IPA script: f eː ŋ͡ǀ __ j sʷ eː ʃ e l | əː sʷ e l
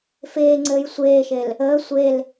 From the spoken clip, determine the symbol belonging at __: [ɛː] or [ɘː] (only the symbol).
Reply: ɘː